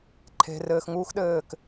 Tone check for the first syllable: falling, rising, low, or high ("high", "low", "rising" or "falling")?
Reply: low